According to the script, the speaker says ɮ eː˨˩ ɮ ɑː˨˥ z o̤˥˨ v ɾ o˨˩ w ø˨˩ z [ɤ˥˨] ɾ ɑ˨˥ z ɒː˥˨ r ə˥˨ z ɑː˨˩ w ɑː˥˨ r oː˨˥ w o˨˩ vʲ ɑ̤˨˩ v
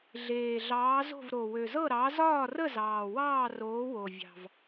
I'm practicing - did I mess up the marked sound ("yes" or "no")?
no